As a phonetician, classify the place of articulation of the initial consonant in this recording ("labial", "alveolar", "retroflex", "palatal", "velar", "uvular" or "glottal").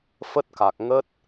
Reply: labial